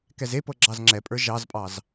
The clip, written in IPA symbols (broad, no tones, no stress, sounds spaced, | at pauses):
k ɛ z e p ɤ ɡ͡ǁ ɑ z ŋ͡ǁ ɛ pʼ ə˞ ʒ ɑ z pʼ ɑ z